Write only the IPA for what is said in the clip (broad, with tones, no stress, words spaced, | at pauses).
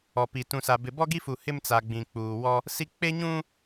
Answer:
ɔ˨pi˨ tũ˨sa˨ bɪ˨bɔ˦ɡi˦fu˨ hɪ˦mt͡sa˨ ɡ͡bĩ˨k͡puː˨wɔ˦ | si˦ k͡pe˦ɲũ˦